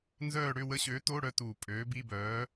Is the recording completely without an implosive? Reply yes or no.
yes